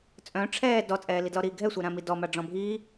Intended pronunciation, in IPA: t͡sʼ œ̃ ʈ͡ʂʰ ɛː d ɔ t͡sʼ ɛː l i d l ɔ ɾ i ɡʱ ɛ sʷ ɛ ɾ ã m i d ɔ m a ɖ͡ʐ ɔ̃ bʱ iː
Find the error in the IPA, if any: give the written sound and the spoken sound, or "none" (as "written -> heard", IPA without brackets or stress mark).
none